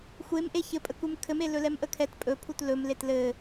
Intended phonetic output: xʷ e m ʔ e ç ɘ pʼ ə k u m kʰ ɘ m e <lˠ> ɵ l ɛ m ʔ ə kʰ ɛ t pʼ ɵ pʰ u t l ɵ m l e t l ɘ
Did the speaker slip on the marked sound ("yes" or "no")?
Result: yes